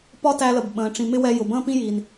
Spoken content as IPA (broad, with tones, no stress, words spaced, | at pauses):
pɒ˦tæ˧lə˨b ɓə̃ː˨ ʈ͡ʂĩ˨mɪ˦wɛ˧jʊ˨ bə̃ː˦pĩ˦jiː˨n